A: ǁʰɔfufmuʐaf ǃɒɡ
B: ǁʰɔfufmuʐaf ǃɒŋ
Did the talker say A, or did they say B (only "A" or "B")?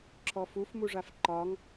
B